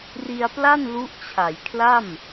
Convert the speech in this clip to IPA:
r i˧ a̯ p l a˥˩ n l u˦˥ ʔ t͡ɕʰ a˩˦ j kʰ l a˥˩ m

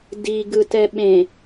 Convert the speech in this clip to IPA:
d i ɡ ɯ t ɛ ɓ ẽ

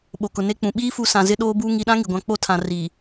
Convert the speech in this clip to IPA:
ɓ o˨ k ʊ˨ n e˦ k͡p ũ˨ ɓ iː˦ f u˨ s ã˨ z ɪ˦ ɗ oː˦ b uː˦ ŋ i˨ ɗ ã˦ ŋ i˨ ɡʷ ã˦ k͡p o˦ tʰ ã˨ r i˨

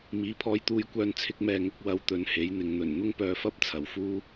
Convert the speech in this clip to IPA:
m iː˨˥ pʰ ɔː˧ j t̪ uː˧ j kʷ œː˧ n t͡sʰ ɪ˥ k̚ m ɛː˧ ŋ ʊ˥ k̚ w ɐ˧ w t̪ ɵ˨˧ n h e˨˥ j n̪ ɪ˨ ŋ n̪ ɵ˨˩ n n̪ ʊ˥ ŋ p œː˧ f ɐ˥ p̚ t͡sʰ ɐ˨ w f uː˥

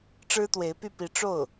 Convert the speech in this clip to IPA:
ʈ͡ʂ ɻ̩˥ t̪ w e˧˥ ɪ̯ p y˥˩ p i˧˥ ʈ͡ʂ o˥˩ ʊ̯

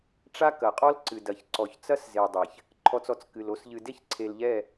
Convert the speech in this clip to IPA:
ʈ͡ʂ a˦ k ɐ˨ qʼ ɔ˦ l ǀ ɨ˨ d ɐ˨ ç ǀ ɔ˨ ç t͡s ɐ˦ s z e˨ dˤ e˨ ç | ǃʰ ɔ˨ t͡s ɔ˨ t͡s k ɨ˨ l o˨ s ʎ ɨ˨ d e˦ ç ǀʰ e˨ l ʎ ɛ˦˨

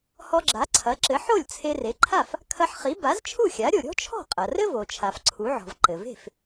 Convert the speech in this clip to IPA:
h ɔ˧ ɡ͡ǁ a˩˥ ǀʰ ɐ˩˥ ǁ ɘ˩˥ ħ o˥˩ lʲ t͡sʰ e˧ r e˩˥ ǃʰ a˥˩ f | kʰ ɐ˧ ħ χ i˩˥ b a˩˥ z t͡ʃʰ u˥˩ xʲ a˩˥ ɾʲ o˩ ɾʲ ɔ̤˥ t͡ʃʰ ɔ̤˥˩ qʼ ɐ˩ r ɘ˥ v o˩ t͡ʃʰ a˩ f ǀʰ u˩˥ ʕ ɔ̤˩ v ǃ ɘ˩ v e̤˥˩ f

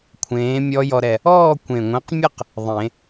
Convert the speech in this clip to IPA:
kʷʰ ẽː˨˥ mʲ ɔ˦˥ j ɔ˧ ɾ ɛ˨˩ | ɔː˥˧ kʷ ẽ˨˩ ŋʷ ɛ̃˨˥ q mʲ ɘ˥˧ q | ðˤ ẽ˨˩˦

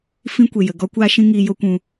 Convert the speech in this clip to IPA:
f ĩ˧ kʷ e˨ j ə˨ ɡ ɔ˧ kʷ aː˧ ʃ ĩ˧ ŋ iː˧ j o˦ kʷ ũ˧

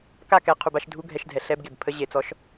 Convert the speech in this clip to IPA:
k a˥˨ k ɛ˧˩˧ qʰ u˧˩˧ b a˧˥˧ ʃ dʱ u˧˥˧ ɡʱ ɛ˧˩˧ ʃ dʱ ɛ˩ ɬ ɛ˧˥˧ b ɡ e˩ b pʰ ə˧˥˧ ʑ e˧˩˧ t͡s ɔ˨˥ ʃ

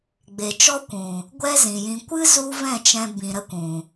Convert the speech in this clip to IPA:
ɡ͡b e˨ t͡ʃ ɔ˦ kʷ ũ˨ | ɡʷ ɛ˦ z ĩ˨ j ĩ˧ kʷ ɨ˦ z u˦ v ɛ̃˦˨ t͡ʃ ɛ̃˧ b ĩ˨ ɾ ə˧ kʷ ũ˨

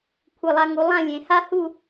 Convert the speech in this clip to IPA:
kʷʰ ɘ˧˩ lˠ a˧ ŋ u˩˧ lˠ ã˥˧ lʲ ẽ˩˧ h a˥ h u˥˧

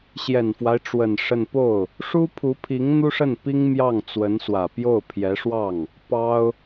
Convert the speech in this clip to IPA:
ɕ j ɛ˨˩ n f w a˦ ɪ̯ ʈ͡ʂ w ə˨˩ n ʂ ə˥˧ n p o˥˩ ʊ̯ | ʂ u˥ pʰ u˧˥ pʰ i˧˥ ŋ n̪ u˥ ʂ ə˥˩ n p i˥ ŋ m j ɑ˥˩ ŋ t͡s w ə˧˥ n s w ä˨˩ p j o˥˩ ʊ̯ pʰ j ɛ˧˥ ʂ w ɑ˥˩ ŋ | p ɑ˥ ʊ̯

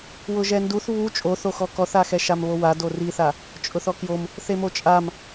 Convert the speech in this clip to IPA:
w ʊ ʒ ɛ n d u θ β u t͡ʃʼ o θ o x ɔ k ɔ θ a x ɛ ʃ a m β o w a d o r i θ a | t͡ʃʼ ʊ θ ɔ k j o m | θ e m o t͡ʃʼ a m

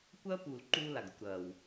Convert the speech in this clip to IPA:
kʷ ɐː˥ p uː˨ l ǃ uː˦ l a˩ ɡ ɾ ɐ˨ kʷ ɾ ɐː˩ w

